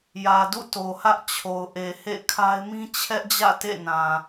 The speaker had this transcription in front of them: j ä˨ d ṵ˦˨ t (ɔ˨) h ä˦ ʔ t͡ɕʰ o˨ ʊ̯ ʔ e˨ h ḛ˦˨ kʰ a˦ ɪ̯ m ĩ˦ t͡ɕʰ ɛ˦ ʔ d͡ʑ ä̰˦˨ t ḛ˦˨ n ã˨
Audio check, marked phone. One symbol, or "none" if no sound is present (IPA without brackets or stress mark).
o˨